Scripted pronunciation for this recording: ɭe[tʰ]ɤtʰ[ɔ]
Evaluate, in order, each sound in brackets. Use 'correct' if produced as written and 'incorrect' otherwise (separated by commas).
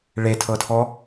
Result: correct, correct